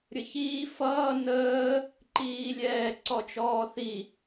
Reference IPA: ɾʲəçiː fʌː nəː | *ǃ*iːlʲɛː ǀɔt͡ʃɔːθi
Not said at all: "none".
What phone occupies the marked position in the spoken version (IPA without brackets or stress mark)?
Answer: ǃ